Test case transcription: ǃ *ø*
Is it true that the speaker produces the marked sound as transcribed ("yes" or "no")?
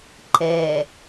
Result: no